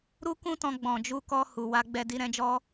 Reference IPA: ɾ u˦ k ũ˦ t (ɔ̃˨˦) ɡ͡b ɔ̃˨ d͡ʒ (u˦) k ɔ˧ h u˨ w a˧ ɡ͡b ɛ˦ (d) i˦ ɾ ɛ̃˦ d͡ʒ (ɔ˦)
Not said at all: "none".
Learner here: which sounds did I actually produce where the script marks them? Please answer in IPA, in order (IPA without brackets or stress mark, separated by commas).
ɔ̃˧, u˧, d, ɔ˦